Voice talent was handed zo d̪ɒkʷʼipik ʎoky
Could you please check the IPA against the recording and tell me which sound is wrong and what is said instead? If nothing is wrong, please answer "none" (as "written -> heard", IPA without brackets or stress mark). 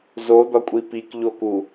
y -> u